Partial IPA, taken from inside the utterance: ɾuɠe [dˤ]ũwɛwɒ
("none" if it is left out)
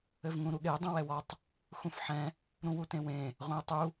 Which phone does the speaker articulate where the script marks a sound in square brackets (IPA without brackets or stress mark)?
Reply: dˤ